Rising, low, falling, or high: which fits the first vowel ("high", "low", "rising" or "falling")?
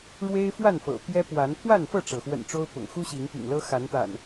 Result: high